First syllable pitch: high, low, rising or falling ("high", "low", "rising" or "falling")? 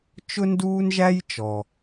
high